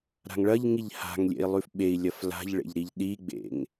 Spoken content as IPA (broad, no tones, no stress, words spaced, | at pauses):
ɾa̤ŋɭɐʎŋiʎ ha̤ŋlʲḛi̯ lˠʉfɓei̯lʲɐf la̤ʎɭḛʎ ɾiʎɗiɡ͡bḛŋ